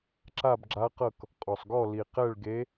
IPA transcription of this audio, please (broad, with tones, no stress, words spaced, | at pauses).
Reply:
ǁa˥˨bɡ͡ǁa˧˥qɤ˥˨k | qʼɔ˨sˤɡɔ˥˨ li˨qɛ˥˨ɭɡe˧˥